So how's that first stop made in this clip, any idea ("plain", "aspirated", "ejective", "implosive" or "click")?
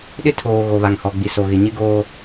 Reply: implosive